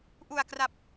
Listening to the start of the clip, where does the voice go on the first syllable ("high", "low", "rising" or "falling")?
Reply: low